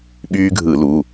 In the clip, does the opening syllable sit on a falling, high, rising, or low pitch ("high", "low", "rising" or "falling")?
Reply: high